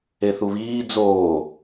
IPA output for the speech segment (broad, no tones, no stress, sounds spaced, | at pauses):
e θ u β iː d͡z oː